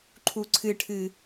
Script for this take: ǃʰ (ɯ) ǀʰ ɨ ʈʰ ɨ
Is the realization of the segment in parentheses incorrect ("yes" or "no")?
yes